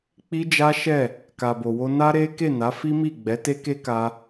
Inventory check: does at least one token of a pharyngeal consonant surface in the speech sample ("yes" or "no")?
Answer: no